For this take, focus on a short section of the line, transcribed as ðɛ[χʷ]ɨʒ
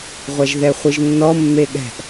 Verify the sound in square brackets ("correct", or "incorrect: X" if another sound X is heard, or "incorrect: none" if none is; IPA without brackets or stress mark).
correct